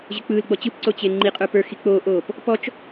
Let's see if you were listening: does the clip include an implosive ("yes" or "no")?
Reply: no